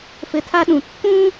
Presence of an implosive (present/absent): present